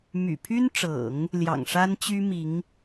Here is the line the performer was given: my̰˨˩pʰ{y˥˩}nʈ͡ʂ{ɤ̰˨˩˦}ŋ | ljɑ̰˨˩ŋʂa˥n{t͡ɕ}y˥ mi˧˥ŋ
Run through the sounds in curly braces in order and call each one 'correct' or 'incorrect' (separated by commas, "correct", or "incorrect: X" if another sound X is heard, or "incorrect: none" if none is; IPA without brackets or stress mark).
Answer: incorrect: y˥, correct, correct